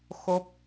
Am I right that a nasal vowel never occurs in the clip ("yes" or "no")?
yes